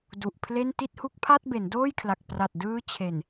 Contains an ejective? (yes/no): no